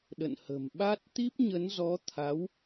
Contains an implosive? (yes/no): yes